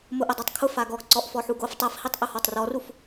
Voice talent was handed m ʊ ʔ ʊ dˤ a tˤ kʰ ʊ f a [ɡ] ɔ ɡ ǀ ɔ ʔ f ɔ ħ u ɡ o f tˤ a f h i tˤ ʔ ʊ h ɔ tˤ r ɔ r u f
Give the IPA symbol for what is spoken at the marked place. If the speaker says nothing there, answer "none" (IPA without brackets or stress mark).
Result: ɡ